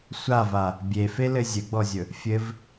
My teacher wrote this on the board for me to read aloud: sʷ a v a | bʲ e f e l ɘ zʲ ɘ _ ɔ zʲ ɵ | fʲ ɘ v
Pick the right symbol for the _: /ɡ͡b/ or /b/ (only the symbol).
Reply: ɡ͡b